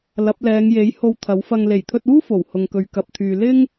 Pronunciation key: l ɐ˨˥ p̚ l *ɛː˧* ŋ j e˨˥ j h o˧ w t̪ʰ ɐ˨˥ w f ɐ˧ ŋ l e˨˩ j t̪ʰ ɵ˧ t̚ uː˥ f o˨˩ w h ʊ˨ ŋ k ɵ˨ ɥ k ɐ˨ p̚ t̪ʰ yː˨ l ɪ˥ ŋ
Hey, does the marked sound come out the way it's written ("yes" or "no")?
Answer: no